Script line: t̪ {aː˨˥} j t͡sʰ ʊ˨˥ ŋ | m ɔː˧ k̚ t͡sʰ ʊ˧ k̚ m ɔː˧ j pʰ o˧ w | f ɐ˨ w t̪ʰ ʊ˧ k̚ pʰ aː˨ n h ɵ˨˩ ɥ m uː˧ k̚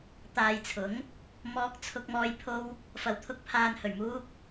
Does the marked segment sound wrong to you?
yes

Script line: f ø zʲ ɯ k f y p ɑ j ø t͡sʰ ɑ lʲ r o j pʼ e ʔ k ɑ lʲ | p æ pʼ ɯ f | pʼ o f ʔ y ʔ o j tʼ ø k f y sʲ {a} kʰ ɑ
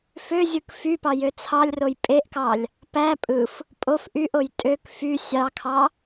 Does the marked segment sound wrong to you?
yes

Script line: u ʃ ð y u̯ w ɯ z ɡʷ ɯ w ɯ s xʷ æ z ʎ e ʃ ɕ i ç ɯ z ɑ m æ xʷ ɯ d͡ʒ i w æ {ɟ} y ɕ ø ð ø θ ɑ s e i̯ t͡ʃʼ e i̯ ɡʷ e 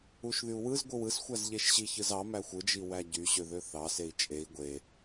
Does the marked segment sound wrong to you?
no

